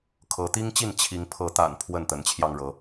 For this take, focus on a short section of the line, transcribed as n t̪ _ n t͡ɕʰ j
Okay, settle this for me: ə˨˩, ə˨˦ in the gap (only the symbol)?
ə˨˦